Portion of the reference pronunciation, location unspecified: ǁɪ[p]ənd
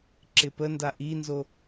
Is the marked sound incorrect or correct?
correct